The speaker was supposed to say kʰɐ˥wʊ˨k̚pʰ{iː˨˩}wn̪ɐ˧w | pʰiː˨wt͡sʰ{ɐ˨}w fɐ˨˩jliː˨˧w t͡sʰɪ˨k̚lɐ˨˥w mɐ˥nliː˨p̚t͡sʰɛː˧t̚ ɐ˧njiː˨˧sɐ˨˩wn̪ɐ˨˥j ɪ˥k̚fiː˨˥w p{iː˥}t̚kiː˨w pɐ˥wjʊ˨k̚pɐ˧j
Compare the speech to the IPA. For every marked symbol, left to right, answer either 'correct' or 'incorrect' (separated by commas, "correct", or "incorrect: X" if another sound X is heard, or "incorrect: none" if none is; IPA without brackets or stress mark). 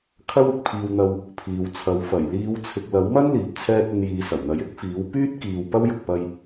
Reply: incorrect: iː˧, incorrect: ɐ˨˧, incorrect: yː˥